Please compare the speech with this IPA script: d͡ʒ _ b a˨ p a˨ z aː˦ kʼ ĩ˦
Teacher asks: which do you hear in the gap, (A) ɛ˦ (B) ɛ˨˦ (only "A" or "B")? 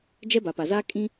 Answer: A